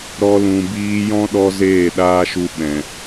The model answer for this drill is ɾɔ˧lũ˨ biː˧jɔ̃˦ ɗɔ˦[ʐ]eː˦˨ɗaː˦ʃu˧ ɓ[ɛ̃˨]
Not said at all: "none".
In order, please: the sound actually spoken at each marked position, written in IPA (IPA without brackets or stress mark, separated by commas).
z, ɛ̃˨